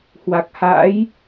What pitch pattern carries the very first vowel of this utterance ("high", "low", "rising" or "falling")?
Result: low